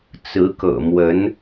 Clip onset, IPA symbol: t͡s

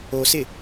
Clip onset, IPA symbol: o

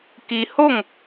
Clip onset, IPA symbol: k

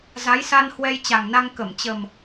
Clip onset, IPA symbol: z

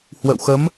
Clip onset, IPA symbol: h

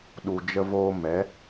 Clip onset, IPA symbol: ɗ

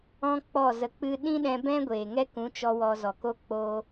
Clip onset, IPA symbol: ɔ̃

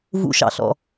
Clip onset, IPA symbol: v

